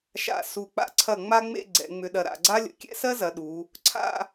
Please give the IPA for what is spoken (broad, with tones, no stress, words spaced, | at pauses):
ʃa̰˧˩ su˧˩ k͡pa̰˧ǀʰɐ˧˩ ŋ͡ma˥ŋ͡mḛ˥˧ ɡ͡ǀɛ̰˩˧ ŋ͡mʏ˩˧ɗɐ˩˧ ɾa̰˧˩ɡ͡ǀa˥lʲə̰˧˩ kʲɛ̰˥sɜ˥zɐ˩˧ ɗu˩˧ | ǀʰa̰˥˧